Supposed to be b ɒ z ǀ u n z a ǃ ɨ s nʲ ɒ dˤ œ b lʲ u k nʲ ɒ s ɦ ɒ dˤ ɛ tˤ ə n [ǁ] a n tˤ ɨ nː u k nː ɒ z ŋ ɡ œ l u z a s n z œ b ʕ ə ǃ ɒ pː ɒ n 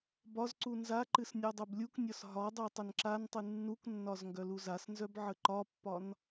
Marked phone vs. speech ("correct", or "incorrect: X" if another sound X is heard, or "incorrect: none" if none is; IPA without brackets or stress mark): correct